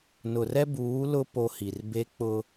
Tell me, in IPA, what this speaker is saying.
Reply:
n ʊ˨ r ɛ˦ b uː˨˦ l ʊ˦ p o˦ h i˨ r b e˦ k͡p ʊ˦

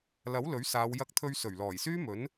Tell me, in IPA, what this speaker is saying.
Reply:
l ɐ˨˥ w l ɵ˨˥ ɥ s aː˨˧ w j ɐ˧ k̚ t̪ʰ ɵ˧ ɥ s ɵ˨˩ ɥ l ɔː˨˩ j s yː˥ m ɵ˨˥ n

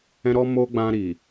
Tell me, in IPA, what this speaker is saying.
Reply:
ɛ̃˧ ɾ ɔ˧ m o˧ ɡ͡b ã˧ ɾ i˨

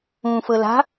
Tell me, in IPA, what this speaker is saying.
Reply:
ũ f ɤ l a̤

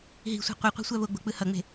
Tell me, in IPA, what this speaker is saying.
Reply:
ɦ i̤ sʷ i̤ qʷ i qʷ ɛ̤ sʷ a v o ɡ͡b o̤ k͡p ɯ h ʌ ŋ͡m e̤

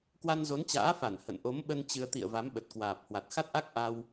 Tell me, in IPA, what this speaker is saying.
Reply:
k w a˧ n z o˨˦ n t͡ɕ a̰ː˧˥ f a˧˩ n h ə̰˧˨ n ʔ o˨˦ m ɓ ə˧ n t͡ɕ ɨ˧ ə̯ t̪ ḭ˧˨ ə̯ v a˨˦ m ɓ ə˨˩ t̚ k w aː˨˩ p̚ h w a˨˩ t̚ x a˦˥ t̚ ʔ a˦˥ k̚ ʔ a˧ w

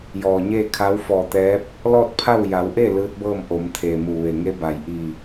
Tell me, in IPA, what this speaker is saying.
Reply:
j ɔː˩ ɲ eː˥˨ kʰ a˧˥ w f ɔː˧˩ t̪ ɛː˧˥ p̚ | l ɔː˥˨ t̚ pʰ a˥˨ w j a˩˧ w ʔ e˥˨ l ɯː˧˥ t̚ b ɤː˥˨ m ʔ o˩˧ m t̪ʰ eː˩ m u˩ ʋ e˩ ŋ e˧˥ b a˩ j ʔ i˧˩

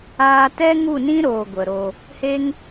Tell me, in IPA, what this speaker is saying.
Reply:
aː˧ t ɛ˦ ŋ u˦˨ n ĩ˦ ɾ oː˧ ɡʷ ə˨ ɾ o˧ | h e˦ ŋ

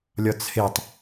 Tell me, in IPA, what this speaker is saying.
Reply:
lʲ ɒ t͡sʰ e tˤ

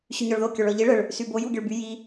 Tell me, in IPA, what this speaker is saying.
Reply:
ɕ y ɲ ɔ ɭ ð o kʲ ɔ ɭ ɔ ʎ i ɭ ə ɭ | s y b o j u ɡʲ ə ɭ b y j i

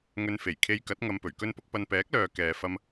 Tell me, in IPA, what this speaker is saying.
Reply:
ŋ ɵ˧ n f e˨˩ j kʰ e˧ j k ɐ˨˥ t̚ ŋ ɐ˧ m p ɵ˨˩ ɥ k ɵ˥ n p ʊ˥ k̚ p ɐ˧ n p ɛː˨˥ k̚ l œː˨ k ɛː˨ f ɐ˧ m

